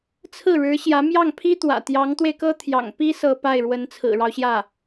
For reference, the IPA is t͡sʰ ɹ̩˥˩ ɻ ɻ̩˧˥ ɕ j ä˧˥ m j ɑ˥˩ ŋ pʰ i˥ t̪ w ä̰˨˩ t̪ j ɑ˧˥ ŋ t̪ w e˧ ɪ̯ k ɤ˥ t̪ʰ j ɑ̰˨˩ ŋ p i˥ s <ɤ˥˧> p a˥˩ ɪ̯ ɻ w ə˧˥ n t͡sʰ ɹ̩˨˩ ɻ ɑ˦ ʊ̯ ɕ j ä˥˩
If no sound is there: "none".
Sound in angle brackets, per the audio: ɤ˥˧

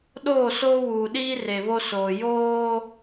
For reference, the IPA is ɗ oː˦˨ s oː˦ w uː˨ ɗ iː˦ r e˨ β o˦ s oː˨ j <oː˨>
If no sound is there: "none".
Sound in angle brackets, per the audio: oː˦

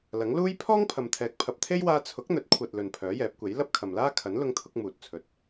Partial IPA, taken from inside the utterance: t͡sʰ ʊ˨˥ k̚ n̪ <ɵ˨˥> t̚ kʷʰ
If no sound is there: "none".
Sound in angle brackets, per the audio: ɵ˨˥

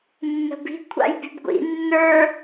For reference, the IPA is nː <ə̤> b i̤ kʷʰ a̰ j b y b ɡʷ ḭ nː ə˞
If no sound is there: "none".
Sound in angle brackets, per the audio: ə̤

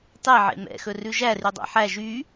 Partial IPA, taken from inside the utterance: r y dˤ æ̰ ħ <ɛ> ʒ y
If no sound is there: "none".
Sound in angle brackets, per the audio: æ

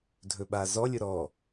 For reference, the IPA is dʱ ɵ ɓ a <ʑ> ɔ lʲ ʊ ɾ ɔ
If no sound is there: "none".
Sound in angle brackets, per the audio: z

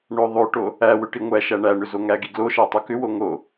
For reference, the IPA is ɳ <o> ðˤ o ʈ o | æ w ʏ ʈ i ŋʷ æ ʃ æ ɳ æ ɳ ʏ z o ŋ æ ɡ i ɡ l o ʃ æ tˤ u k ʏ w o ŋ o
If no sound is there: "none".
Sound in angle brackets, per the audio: o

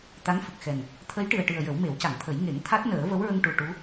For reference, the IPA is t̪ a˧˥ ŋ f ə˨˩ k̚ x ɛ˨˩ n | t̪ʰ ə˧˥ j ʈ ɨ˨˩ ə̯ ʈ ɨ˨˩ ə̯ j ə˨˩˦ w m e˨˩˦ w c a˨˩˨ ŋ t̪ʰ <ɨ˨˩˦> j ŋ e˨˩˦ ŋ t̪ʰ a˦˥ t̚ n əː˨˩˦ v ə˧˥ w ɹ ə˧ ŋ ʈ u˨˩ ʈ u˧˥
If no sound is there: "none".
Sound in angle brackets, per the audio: ə˨˩˦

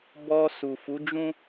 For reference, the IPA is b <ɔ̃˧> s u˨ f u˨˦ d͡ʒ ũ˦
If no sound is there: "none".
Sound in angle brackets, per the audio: ɔ˧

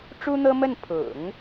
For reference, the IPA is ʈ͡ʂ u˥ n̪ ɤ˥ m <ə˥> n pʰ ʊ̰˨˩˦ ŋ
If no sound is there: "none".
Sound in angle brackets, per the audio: ə˥˩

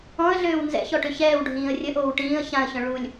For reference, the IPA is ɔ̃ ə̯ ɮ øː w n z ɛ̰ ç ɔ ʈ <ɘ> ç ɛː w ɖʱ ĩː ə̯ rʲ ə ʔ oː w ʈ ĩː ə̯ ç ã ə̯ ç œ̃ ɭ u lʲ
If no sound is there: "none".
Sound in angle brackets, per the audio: ø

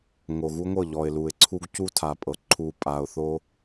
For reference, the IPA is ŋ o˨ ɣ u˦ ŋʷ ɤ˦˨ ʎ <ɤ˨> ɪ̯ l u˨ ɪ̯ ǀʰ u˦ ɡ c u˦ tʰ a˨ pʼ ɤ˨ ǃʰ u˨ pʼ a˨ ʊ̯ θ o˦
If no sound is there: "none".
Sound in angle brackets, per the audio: ɔ˨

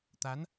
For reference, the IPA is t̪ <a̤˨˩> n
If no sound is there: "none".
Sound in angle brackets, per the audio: a˨˦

